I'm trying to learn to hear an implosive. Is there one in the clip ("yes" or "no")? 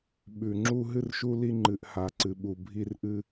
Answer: yes